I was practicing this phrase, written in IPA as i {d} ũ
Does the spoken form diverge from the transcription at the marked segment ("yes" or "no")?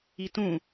yes